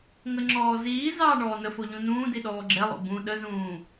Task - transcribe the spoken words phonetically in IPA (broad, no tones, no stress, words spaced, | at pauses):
ŋəŋ͡ǁɔː ziː zɑːɳɔːnəfo ʎũnũːdi ɗɔːɡ͡ǁɛlˠo̰ bũ ɗəzũː